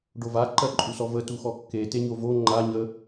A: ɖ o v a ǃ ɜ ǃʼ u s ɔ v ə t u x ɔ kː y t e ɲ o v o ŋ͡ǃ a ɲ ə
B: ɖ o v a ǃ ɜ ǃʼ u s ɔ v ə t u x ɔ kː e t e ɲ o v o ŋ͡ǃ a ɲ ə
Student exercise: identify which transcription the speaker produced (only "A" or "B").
B